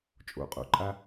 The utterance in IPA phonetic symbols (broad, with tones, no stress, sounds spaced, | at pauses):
t͡ʃʼ o̰˩˧ qʼ o̰˩ ǃʼ a˧